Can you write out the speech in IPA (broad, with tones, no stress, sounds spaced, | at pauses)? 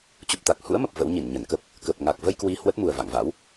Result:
t͡ɕ u˨˩ p̚ t̪ a˨˩ k̚ h ṵ˧˥ ə̯ m ə˨˩ p̚ v ə̰˧˥ w ɲ i˧˩ n ɲ ə˧˩ n k ə˦˥ p̚ | k ə˨˩ p̚ ŋ a˨˩ k̚ v ə˧ j k w i˧ h w ə˦˥ t̚ m u˨˩ ə̯ v a̰˧˨ ŋ v a̰˧˥ w